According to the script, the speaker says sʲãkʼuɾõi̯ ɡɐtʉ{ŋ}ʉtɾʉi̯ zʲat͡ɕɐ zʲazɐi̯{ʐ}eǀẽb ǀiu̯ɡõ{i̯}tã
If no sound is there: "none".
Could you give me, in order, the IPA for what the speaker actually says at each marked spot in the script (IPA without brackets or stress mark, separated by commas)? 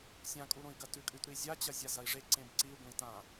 kʼ, ʐ, i̯